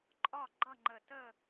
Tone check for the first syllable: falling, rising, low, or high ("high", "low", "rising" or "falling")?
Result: falling